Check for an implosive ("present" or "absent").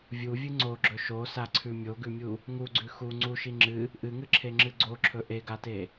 absent